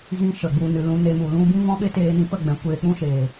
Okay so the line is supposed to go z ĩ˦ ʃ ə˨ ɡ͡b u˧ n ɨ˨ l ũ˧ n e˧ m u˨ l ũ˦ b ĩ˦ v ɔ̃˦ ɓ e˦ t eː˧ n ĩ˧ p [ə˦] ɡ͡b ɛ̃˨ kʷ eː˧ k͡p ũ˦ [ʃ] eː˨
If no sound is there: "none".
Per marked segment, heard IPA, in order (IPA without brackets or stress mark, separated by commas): ə˦˨, ʃ